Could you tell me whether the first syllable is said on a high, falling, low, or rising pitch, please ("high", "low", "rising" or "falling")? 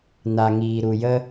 low